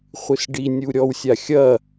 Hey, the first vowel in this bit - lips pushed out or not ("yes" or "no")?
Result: no